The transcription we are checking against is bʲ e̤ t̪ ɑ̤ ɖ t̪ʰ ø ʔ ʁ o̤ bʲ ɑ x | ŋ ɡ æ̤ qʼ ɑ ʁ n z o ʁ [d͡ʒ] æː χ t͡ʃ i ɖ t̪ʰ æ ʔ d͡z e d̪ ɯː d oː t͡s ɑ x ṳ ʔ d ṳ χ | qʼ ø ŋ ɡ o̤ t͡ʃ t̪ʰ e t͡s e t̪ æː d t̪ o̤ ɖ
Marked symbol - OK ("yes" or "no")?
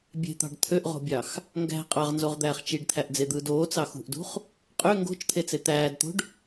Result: no